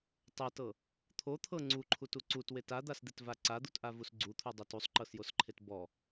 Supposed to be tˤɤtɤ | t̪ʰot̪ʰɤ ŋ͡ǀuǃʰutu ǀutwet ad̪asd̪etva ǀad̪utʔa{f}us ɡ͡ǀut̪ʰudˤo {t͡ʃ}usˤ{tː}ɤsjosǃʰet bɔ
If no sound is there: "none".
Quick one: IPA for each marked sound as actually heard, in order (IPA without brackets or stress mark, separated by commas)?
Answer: v, t, ǃ